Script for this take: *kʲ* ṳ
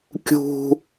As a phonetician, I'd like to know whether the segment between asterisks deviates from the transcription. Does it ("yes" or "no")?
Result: no